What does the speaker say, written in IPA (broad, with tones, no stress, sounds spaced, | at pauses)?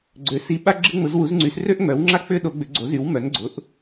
ɡ͡ǀ ø˨˥ s i˨˥ ɓ a˥ ɡ͡ǁ ɪ˥ ŋ͡m ʊ˨˥ z w u˨˥ z ŋ͡ǀ y˨˥ s r ø˥ ʔ ŋ͡m œ˨˥ w ŋ͡ǁ a˥ k͡p ʏ˥ ɗ o˨˥ ɡ͡b ʏ˨˥ ɡ͡ǀ o˨˥ z y˨˥ w m œ˨˥ n ɡ͡ǀ ʊ˨˥ ʔ